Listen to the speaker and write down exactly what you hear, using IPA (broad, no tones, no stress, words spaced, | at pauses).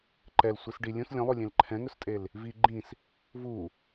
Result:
ǃɛlsʷis ɖi lʲũs lʲõlˠulʲẽl ǃʰɛ̃ŋɵstʼel | vi ɡ͡ǃĩs | vu